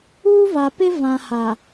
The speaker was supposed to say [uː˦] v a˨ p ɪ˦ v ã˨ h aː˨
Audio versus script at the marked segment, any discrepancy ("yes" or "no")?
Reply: no